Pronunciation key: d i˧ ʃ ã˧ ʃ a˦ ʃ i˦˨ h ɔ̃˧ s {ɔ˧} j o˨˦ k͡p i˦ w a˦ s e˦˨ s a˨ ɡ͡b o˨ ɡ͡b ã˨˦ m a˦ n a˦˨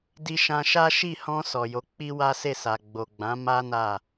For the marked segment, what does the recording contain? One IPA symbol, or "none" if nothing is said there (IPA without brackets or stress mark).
ɔ˨